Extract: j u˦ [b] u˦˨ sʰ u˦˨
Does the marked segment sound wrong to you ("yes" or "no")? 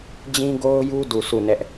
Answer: yes